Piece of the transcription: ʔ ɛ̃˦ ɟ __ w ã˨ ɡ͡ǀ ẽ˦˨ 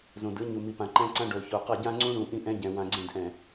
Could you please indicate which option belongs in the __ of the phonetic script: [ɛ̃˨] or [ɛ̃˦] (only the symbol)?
ɛ̃˨